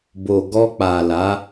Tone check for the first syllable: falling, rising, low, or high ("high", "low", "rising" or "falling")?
low